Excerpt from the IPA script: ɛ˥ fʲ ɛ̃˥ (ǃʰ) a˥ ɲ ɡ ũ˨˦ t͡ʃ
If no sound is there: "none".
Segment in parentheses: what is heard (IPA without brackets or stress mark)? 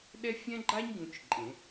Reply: ɡ͡ǃ